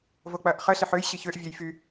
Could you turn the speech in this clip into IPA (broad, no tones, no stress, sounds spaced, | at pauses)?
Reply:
v o k͡p ɐː ʔ χ ə ɬ ɪ ħ ø j ɕ i ç ø ʔ vʲ ø j f y